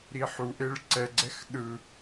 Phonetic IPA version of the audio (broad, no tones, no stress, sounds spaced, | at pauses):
ɾ i ħ u ʔ e ɭ ǀ ɛ ɡ͡ǀ ɛ x ɗ ɯ